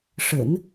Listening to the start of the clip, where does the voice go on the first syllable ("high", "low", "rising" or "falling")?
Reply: low